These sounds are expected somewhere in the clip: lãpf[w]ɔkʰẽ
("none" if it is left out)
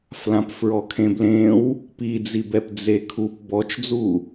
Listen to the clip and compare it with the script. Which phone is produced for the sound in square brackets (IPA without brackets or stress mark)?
ɹ